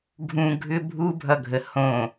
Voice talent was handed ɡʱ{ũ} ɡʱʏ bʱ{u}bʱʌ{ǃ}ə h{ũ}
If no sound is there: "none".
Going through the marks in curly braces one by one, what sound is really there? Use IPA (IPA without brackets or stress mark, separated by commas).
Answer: ũ, u, ɡʱ, õ